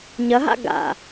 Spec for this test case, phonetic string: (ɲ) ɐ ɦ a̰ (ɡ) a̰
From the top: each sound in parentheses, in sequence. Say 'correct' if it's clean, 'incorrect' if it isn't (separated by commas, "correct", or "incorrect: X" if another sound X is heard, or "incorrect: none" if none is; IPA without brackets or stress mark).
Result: correct, correct